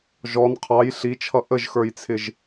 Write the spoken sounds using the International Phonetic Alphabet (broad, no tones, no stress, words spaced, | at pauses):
ʒɔn qʰɑj ɬit͡ʃʰʌ ʔəʒxə˞jt͡sʰɪʒ